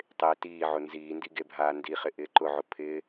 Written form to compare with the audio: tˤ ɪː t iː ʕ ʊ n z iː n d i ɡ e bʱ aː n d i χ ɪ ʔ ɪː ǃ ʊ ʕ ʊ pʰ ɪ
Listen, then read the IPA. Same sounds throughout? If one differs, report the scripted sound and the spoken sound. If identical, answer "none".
none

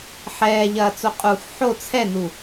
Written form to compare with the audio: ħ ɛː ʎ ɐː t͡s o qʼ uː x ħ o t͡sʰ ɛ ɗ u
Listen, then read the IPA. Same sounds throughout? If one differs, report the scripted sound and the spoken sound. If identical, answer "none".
ɗ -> n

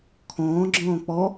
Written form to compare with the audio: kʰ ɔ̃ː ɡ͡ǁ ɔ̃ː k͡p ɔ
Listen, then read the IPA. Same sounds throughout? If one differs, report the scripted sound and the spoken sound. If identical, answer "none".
none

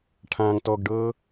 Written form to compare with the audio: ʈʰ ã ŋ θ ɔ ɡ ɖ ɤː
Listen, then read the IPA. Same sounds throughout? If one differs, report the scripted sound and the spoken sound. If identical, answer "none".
θ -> t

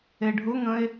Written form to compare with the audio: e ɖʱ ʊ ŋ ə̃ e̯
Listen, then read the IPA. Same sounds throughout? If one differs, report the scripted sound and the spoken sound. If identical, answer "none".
none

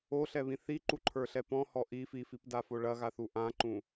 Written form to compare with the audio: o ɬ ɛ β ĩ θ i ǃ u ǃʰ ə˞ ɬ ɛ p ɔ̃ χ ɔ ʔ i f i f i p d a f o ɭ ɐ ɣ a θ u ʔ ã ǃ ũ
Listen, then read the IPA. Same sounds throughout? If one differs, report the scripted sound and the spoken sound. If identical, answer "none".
χ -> h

